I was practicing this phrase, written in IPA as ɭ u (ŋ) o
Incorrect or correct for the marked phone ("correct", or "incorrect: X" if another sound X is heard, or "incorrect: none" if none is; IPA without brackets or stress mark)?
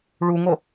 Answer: correct